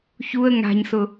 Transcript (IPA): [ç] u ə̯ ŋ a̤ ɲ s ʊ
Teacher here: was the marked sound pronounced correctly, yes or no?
yes